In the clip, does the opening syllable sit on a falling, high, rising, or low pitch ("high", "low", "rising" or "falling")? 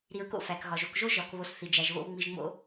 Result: low